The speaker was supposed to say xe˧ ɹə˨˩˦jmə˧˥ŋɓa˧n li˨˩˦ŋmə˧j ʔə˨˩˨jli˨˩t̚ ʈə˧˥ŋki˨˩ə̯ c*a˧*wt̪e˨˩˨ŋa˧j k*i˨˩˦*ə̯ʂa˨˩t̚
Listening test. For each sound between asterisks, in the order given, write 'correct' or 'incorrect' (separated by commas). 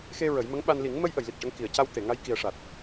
correct, incorrect